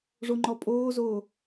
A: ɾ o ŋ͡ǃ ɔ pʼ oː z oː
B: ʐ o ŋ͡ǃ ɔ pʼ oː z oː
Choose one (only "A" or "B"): B